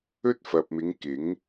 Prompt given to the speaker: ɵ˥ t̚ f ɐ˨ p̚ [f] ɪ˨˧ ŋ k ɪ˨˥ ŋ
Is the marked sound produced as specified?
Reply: no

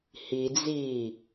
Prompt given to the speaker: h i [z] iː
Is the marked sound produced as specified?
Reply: no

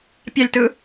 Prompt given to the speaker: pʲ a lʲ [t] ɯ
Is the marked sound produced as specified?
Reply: yes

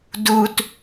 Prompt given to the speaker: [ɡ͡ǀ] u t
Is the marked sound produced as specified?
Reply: no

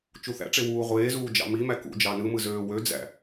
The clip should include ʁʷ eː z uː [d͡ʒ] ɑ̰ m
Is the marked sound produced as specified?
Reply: yes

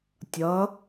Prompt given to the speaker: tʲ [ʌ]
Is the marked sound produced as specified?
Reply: yes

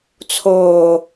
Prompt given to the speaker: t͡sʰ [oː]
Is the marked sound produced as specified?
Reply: yes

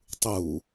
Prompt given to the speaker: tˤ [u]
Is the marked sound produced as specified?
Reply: yes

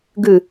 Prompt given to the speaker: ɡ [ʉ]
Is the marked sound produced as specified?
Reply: yes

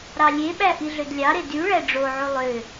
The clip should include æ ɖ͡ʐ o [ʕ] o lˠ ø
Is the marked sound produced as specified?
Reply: yes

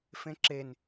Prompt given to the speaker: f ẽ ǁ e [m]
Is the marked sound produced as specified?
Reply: no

